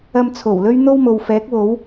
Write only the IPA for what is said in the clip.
ɐ˧ m t͡sʰ o˨˩ w l ɵ˥ ɥ n̪ o˥ w m o˨ w f ɛː˨˥ k̚ w o˨˥ w

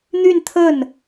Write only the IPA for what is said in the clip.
n̪ y˥˧ n t̪ʰ ə˥˩ n

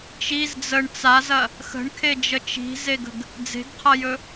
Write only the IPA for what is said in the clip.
t͡ʃ i z d͡z ə ɳ t͡s a z ɐ | x ə̤ ɳ kʰ e d͡ʒ ə t͡ʃ i̤ z e ɡ ə̤ ɡ | d͡z e̤ ɡ qʰ ɐ j ɵ

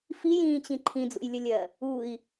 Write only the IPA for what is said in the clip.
f i j ĩː t͡ɕ ĩ ǃʰ ĩ d͡z ṵ j lʲ ə lʲ ɜ | u i̯

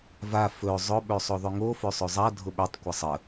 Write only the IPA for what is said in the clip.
v a f ɵ zˤ ʊ ɓ ø sˤ o ðˤ ø ŋ o f ø sˤ ø zˤ a dʱ ʊ ɓ ø tˤ kʷ ɛ sˤ ə

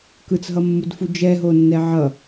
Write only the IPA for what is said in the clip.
k ɯ t͡s ɦ ʌ mː u d f u d͡ʒ ɛ ɦ o nː ɛ ʕ ʌ

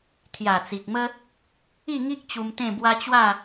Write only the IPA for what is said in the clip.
t̪ʰ j a˨˩ t͡s i˨ k̚ m ə˦ | i˥˧ ŋ i˦ k̚ t͡ɕ u˧ m t̪ ẽ˥˧ b w a˦ t͡ɕ w a˥˧

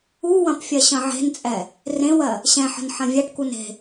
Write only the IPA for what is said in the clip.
u w ɐ̃ p fʲ ɜ ɕ ɐ̃ ʕ e̤ n t͡sʼ ɛ | r ẽ w ɜ | ɕ ɛ̃ ħ ə̤ n ħ ɐ̃ vʲ ɛ ʈ k u n e̤

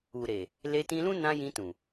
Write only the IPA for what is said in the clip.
u˨ ɾ e˨ | l e˧ t ĩ˧ l ũ˦ n ã˧ j ĩ˧ t ũ˨

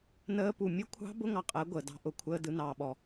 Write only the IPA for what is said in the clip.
n əː˦˥ p u˨ mʲ ʊ˦˥ kʷʰ ɑ̤˦˥ b ʊ˦˥ ŋ ɑ˨ qʼ əː˩˥ ɡʷ əː˨ d ɑ̤˦˥ ʔ ʊ˩˥ kʷʰ əː˦˥ d ɯ˩˥ n ɑː˨ ɓ ɔ˨

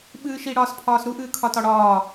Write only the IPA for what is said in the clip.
ɓ ɨː ʃ i ɽ ɒː s pʰ ɒː s ɾ u ʔ ɨː kʰ ɒ t ɒ ɽ ɒː

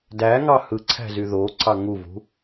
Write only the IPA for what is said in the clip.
d æ ŋ ɑ h ɯ ǀʰ æ̤ z y ð o ǀʰ ɑ ŋ u v ṳ

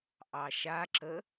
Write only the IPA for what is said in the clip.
ʔ ɑ ʃ a ǁ ə

